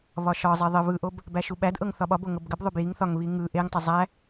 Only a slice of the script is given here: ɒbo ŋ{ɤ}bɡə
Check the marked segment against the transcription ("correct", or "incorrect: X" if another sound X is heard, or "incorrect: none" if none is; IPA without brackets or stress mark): correct